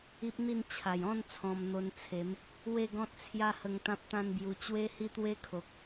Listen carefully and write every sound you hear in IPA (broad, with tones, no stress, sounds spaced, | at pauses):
i˦ p̚ n̪ i˥˧ n t͡ɕʰ a˨˩ j ɔ̃˥˧ n t͡sʰ ɔ̃˧ m n̪ o˧ n t͡sʰ e˨˦ m | w e˥˧ ɡ ɔ̃˦ t̚ t͡sʰ j a˦ h ə˧ ŋ t̪ ã˦ p̚ t̪ ã˦ n b j u˧ t͡ɕ w e˦ h i˥˧ t̪ w e˦ kʰ o˨ k̚